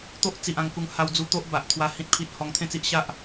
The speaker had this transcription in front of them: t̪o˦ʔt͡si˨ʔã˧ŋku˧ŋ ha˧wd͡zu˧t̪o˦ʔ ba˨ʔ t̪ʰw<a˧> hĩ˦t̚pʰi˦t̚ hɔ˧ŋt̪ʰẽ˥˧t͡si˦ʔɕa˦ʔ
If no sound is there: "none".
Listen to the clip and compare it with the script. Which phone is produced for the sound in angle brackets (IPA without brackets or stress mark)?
a˧